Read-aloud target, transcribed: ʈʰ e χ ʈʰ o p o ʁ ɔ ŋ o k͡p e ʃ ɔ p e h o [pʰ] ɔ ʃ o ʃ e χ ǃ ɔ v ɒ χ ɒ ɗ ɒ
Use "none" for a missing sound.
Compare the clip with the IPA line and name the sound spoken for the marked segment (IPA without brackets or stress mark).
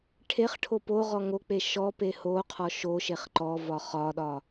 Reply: qʰ